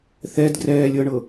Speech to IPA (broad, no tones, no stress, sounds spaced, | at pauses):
θ ɛ d ɡ r ɛː lʲ ɤ ɳ ɤ